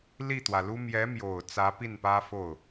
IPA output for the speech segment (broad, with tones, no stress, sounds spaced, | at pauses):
l i˥˩ t̪ w ä˩ l u˥ m j ɛ˧˥ m j o˨˩ ʊ̯ t͡s ä˧˥ p i˥˩ n p ä˥ f o˥˩ ʊ̯